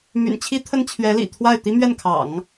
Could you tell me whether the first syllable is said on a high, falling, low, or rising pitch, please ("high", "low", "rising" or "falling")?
low